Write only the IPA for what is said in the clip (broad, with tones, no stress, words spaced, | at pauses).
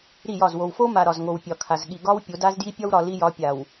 ɾi˦˨jɒ˦˨z wo˨wfo˦ma˨ ɾɒ˨zŋo˨wpʲɒ˨kʰa˨z ɠi˨ɡɒ˦w pʲo˨˦da˦zdji˦ pʲɒ˦wɾɒ˨ li˦ jɒ˨˦ pʲa˨w